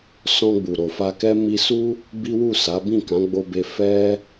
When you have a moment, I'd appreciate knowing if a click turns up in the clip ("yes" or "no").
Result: no